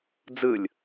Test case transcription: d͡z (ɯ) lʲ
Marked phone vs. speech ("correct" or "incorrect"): correct